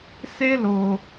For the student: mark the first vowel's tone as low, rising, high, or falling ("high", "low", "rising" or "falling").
high